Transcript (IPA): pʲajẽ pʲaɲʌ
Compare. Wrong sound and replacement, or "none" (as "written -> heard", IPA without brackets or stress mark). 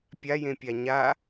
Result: ʌ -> a